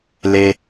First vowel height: mid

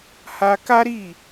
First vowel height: low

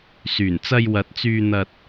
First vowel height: high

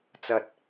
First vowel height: low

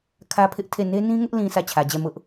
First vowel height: low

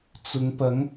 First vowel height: high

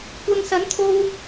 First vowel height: low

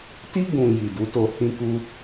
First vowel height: high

